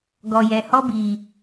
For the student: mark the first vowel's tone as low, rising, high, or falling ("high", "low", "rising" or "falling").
low